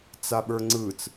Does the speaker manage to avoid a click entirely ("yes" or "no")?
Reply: no